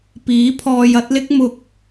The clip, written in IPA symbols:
piː˨˥pʰɔː˧j ɐ˨˥t̚lɪ˥k̚ mʊ˨k̚

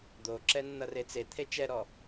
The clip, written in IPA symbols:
d̪oǁɛ nːʌret͡set̪ʰe t͡ʃɛɾɔ

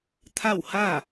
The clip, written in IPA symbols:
t̪ʰa˥˨wha˥˨

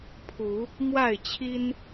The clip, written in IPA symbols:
pʰu˨˦ | mwa˥˨ɪ̯t͡ɕʰi˦n

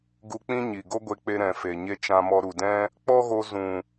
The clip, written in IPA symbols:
ɡu˧k͡pĩ˦ɲi˨ ɡo˦ɡʷe˧k͡pe˧ ɾɛ̃˨ fe˨ɲe˧ t͡ʃã˧mɔ˧ɾu˨dɛ̃˦ | k͡pɔ˦ɣo˧ zũ˨

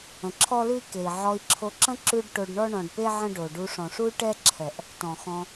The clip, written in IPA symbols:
ə̃˨ǁʰɔ˦lʉ˦i̯ke˨i̯ ʕɔ˧i̯ǁʰo˧ǁə̃˦ ǁʉ˦ɖ ʈo˧ɖɳɔ˦ɳɔ̃˨ɖpe˦ ʕə̃˦ɖo˨ ɖu˧ʂɔ̃˨ʂu˦y̯ ʈɛ˦ǁʰɛ˨ʔ | tɔ̃˨xɔ̃˧

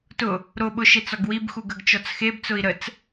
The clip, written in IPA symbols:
tʊ | ɾoɓʊ ʃet͡sɔɡwibxu ɡəɡt͡ʃɔt͡sxebt͡sʊi̯ ɾət͡s

